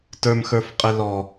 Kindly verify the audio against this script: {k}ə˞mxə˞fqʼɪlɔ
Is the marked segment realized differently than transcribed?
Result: yes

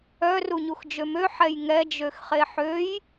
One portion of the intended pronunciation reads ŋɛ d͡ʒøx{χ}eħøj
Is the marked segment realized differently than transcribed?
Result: no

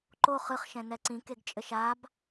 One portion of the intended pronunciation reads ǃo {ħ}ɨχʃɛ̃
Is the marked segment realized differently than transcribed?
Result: yes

